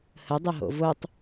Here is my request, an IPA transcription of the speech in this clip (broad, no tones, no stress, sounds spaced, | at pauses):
h ə dˤ o ɦ o̰ v o tˤ